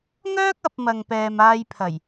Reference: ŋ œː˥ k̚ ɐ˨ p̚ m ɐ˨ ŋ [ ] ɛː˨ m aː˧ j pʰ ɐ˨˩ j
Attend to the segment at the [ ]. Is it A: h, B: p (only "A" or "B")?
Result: B